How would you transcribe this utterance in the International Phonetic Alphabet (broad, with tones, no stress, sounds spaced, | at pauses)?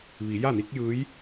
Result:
ʋ i˩˧ j a˥˨ n i˧˥ k̚ j ɯː˧˥ j